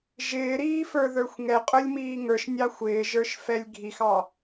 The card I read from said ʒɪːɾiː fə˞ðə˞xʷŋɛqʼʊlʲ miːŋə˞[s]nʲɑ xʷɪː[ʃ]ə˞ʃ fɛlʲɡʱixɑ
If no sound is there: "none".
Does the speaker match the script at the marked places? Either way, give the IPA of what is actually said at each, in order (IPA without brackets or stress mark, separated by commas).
ʃ, ʒ